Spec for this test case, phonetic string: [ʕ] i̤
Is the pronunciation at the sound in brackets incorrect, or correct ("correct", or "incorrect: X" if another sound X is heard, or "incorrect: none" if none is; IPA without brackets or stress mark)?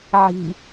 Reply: correct